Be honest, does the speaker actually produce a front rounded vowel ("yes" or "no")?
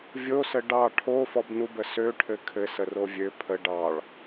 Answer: yes